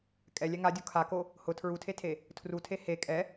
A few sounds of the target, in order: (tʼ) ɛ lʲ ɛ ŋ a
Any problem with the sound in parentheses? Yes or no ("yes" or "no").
yes